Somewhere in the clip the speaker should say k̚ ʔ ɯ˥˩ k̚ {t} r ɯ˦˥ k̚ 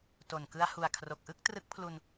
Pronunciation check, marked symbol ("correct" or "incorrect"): correct